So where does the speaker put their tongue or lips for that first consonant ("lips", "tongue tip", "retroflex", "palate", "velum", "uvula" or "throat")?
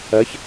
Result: palate